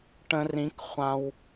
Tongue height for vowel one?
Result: mid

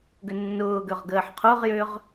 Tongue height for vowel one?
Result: high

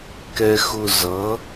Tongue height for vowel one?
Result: mid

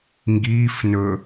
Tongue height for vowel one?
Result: high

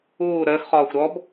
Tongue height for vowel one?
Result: high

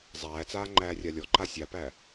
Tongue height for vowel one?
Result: low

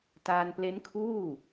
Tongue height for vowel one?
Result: low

